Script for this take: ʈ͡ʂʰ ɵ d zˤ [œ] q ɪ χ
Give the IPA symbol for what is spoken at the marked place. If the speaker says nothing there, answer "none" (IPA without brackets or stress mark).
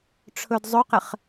ɵ